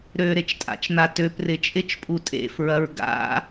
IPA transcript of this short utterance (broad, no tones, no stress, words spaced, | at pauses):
ɾøɾet͡ʃtʼa̰t͡ʃn̪a tøprɪ t͡ʃʼɪt͡ʃpʼu tʼḛfɹɐɹ ɡa̰